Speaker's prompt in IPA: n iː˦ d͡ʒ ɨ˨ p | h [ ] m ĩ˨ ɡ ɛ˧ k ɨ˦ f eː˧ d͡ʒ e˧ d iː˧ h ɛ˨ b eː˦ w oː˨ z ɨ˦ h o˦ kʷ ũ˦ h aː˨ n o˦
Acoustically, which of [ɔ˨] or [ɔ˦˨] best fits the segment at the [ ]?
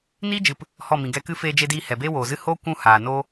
ɔ˦˨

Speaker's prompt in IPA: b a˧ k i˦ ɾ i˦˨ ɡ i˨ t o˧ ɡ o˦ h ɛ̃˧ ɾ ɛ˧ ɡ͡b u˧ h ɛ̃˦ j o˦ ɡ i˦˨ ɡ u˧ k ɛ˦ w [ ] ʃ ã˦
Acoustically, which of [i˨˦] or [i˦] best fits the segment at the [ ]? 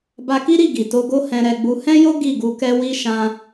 i˦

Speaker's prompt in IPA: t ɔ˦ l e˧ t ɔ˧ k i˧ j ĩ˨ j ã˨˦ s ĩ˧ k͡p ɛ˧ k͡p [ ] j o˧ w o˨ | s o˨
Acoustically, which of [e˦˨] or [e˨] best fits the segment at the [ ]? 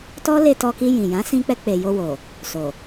e˨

